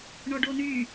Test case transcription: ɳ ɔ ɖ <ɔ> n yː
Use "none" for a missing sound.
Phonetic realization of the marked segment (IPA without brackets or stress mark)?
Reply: o